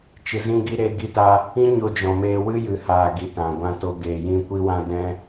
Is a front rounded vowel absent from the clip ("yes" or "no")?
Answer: yes